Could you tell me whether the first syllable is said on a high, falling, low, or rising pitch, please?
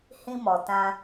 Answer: high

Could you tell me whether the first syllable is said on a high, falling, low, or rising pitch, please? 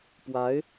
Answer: rising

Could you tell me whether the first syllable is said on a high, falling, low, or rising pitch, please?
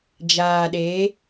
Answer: low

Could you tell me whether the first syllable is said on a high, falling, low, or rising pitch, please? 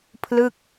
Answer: falling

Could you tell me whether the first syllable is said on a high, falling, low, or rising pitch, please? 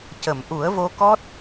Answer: low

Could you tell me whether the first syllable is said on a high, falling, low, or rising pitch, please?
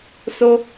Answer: high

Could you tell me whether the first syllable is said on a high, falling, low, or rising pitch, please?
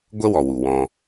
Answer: high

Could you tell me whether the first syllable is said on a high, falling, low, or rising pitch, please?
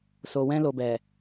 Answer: low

